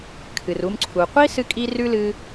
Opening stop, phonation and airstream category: aspirated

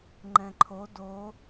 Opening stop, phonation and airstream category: click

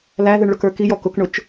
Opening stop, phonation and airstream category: plain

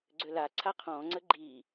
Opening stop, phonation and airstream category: click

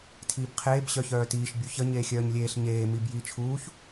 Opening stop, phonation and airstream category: aspirated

